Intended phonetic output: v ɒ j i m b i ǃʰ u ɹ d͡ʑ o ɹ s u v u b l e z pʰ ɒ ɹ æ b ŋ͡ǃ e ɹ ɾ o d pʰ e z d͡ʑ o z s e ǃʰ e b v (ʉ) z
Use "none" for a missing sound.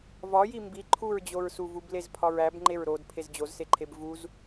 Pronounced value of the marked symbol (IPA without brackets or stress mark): u